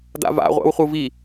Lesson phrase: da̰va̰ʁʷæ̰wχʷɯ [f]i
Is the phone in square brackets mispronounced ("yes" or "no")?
yes